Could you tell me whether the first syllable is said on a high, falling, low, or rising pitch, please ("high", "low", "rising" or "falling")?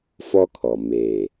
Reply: high